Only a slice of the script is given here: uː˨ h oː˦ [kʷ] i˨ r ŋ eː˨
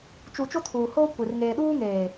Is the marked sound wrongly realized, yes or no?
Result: no